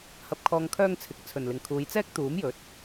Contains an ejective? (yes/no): no